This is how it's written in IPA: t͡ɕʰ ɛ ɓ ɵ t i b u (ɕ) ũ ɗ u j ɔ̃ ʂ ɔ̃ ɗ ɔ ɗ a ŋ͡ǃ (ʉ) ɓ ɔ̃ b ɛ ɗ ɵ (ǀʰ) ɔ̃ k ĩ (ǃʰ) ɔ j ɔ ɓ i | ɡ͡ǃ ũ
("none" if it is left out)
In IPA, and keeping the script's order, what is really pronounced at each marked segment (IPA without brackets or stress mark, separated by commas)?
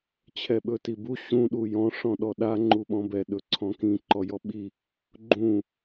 ɕ, u, ǀʰ, ǃ